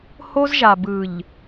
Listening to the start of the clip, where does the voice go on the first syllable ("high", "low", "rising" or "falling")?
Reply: high